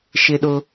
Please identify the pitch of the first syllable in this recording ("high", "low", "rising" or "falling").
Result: high